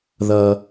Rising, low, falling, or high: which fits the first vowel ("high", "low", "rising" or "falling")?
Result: low